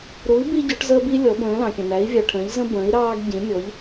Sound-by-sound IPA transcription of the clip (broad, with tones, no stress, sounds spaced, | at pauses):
ɾ u˨˥ i̯ b i˦ ɟ ɔ˨˥ ʈ z əː˦ b i˦ lʲ ɔ˨˥ b ə̃ː˨˥ l ɑ̃˨ kʲ ə̃˨ n æ˨˥ i̯ vʲ ɑ˨ ʈʰ ə̃ː˨˥ ʎ z ə̃˦ b ə̃ː˨˥ i̯ ɾ ɑː˦ ɡ ɟ ĩ˨˥ mʲ ɔ˨˥ ʎ